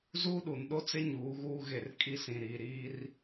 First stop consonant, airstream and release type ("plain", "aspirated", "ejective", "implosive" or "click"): implosive